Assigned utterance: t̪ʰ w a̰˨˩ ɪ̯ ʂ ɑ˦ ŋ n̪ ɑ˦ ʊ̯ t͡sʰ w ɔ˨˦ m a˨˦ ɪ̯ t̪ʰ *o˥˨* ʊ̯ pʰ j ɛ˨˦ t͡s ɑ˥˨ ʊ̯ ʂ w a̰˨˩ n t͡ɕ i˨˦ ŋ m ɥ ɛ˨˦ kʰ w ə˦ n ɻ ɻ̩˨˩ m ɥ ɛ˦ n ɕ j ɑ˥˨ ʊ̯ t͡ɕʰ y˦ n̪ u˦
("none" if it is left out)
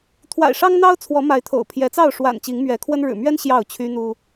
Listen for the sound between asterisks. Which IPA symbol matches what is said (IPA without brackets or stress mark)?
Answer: o̰˨˩